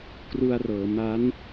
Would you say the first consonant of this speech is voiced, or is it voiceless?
voiceless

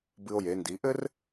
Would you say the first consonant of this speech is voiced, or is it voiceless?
voiced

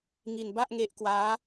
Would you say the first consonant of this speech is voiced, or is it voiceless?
voiced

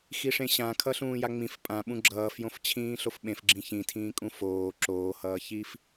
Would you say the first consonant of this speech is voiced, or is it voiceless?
voiceless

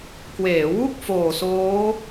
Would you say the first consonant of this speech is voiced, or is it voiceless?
voiceless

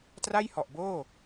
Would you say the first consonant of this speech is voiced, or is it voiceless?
voiceless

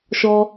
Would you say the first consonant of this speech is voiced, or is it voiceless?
voiceless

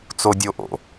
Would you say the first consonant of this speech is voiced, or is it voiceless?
voiceless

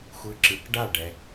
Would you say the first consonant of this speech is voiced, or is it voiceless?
voiceless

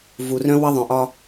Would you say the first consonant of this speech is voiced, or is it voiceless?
voiced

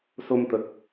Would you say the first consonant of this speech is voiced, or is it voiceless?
voiceless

